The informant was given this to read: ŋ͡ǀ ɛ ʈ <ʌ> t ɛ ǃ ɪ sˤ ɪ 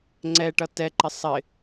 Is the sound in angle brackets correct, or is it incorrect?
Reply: correct